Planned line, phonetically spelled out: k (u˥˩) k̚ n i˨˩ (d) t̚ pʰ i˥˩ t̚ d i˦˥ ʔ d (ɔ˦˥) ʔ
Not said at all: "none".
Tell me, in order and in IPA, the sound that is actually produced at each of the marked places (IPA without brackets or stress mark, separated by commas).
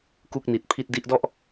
u˥˩, none, ɔ˥˩